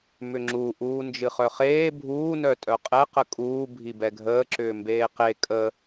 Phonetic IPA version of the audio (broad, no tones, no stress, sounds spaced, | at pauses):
m ʏ ŋ͡ǁ u ʔ uː n d͡ʒ ɨ χ œ χ eː bʱ uː n œ tʼ œ qʼ ɛ q ə kʼ uː bʱ i b ɛ ɡʱ əː ǁ ʏː m b eː q e kʼ ə